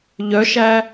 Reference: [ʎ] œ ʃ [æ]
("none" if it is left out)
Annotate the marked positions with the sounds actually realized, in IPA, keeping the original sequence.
ʎ, æ

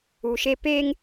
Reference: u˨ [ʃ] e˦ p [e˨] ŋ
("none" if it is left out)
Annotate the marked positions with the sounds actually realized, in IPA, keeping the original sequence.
ʃ, e˦

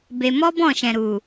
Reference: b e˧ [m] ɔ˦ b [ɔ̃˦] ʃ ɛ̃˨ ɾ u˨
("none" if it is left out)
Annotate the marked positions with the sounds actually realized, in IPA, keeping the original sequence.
m, ɔ̃˦˨

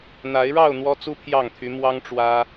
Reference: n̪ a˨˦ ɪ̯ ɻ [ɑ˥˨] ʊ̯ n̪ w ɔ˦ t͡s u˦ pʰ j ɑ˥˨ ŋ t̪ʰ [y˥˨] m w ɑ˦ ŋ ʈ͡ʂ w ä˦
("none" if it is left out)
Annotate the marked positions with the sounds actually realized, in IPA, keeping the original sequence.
ɑ˥˨, y˨˦

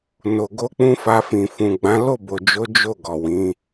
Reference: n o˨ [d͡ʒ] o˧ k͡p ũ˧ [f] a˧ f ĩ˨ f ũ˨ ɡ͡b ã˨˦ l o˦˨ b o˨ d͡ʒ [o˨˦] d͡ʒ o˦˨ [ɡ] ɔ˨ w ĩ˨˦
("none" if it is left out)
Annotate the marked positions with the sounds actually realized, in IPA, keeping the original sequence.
ɡ, f, o˨˦, ɡ

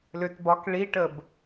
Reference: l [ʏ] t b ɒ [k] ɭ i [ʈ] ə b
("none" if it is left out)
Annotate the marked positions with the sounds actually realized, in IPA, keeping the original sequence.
ʏ, k, ʈ

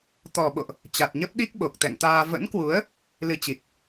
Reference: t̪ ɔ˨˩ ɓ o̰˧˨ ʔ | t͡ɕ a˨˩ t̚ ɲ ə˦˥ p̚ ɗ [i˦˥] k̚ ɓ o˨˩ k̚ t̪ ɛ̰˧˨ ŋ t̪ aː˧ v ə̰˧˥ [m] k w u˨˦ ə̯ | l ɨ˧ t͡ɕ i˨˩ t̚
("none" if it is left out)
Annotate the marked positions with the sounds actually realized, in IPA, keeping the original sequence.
i˦˥, n

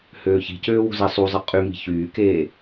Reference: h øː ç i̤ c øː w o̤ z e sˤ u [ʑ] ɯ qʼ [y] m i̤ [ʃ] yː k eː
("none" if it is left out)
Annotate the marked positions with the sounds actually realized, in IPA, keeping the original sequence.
zˤ, y, ç

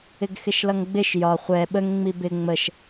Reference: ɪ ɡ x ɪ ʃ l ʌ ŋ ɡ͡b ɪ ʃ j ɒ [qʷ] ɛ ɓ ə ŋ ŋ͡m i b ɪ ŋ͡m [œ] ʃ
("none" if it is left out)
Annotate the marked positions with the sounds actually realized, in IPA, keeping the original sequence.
χʷ, ə

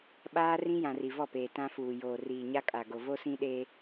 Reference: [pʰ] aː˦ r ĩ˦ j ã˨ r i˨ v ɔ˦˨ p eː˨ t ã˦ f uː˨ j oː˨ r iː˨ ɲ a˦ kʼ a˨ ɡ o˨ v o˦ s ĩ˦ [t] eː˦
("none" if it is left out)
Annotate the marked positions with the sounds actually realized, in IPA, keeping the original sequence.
ɓ, ɗ

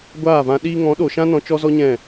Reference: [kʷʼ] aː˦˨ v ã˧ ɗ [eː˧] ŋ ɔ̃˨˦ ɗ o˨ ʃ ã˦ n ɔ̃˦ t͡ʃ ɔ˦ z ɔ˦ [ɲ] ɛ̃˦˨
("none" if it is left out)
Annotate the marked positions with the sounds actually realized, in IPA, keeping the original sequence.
ɡʷ, iː˧, ɲ

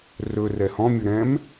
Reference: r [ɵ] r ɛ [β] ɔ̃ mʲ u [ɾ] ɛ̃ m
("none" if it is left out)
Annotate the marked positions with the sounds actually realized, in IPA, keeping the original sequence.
ɵ, h, ɾ

